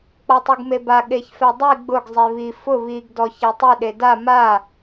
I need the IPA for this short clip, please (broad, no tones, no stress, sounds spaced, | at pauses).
k͡p ɔ tˤ u ɡ m e b a ɠ e ç f ɛ dˤ i ɡ͡b ʊ ɡ zˤ e β i f ʊ β i ɡ d ɔ ç ɛ tˤ i ɗ e d a m a